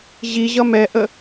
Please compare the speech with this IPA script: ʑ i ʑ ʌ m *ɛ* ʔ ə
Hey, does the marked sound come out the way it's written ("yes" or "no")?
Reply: yes